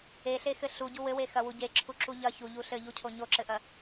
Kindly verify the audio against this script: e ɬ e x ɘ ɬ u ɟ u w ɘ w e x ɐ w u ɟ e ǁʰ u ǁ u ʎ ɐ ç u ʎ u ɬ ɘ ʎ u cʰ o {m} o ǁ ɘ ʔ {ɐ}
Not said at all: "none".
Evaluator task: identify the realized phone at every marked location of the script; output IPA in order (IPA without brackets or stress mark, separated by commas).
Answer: ɲ, ɐ